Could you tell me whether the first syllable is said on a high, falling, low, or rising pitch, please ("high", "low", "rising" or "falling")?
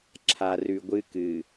low